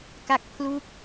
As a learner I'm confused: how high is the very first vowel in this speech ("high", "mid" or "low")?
low